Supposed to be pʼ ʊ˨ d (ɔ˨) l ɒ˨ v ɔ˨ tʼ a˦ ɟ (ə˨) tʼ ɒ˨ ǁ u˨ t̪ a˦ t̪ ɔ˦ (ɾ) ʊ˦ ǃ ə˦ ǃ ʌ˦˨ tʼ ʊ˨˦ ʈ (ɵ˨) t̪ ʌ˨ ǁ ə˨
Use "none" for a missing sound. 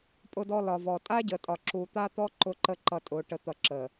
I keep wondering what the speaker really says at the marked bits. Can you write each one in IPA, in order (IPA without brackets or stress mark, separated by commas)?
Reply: ɔ˨, ə˨, ǃ, ə˨